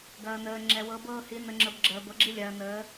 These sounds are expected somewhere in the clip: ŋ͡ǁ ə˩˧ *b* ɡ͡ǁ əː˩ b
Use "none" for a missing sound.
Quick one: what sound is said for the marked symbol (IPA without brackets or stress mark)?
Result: b